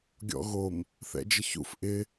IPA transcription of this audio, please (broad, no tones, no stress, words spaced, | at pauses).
ɡʲɔ̰ɣom | θɛ̰d͡ʒəçṵf ʔɪ